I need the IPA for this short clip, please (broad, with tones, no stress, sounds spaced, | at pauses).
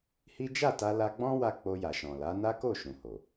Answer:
h i˦ d͡ʒ a˦˨ t a˧ l a˧ ɡ͡b ɔ̃˦ w a˦ k͡p o˧ j a˨ ʃ ɔ̃˨ l a˨˦ n a˦ k o˦˨ ʃ ũ˨ h o˨